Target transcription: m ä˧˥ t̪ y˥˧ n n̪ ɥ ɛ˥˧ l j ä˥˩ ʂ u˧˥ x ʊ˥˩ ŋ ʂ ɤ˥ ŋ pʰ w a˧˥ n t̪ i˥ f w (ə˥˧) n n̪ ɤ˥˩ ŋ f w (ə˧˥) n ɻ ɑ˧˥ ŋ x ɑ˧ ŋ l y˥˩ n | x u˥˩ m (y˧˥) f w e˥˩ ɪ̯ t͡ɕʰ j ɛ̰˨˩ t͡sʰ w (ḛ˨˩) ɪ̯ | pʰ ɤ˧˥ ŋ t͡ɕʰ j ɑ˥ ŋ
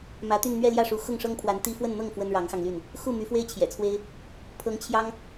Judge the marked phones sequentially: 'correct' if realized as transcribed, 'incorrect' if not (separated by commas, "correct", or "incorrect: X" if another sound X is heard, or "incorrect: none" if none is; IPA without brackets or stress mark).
correct, incorrect: ə˥, correct, incorrect: e˥